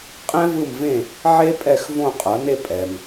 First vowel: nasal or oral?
nasal